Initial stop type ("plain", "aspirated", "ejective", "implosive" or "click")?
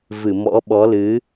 implosive